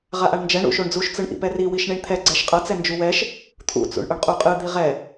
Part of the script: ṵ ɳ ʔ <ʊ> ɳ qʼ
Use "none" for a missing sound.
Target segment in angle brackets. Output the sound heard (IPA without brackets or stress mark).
ʊ